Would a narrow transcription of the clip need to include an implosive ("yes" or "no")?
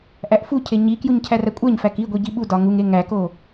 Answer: yes